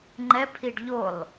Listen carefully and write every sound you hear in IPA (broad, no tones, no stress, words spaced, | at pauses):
ŋ͡ǃɛpʰiɖ ʎolˠ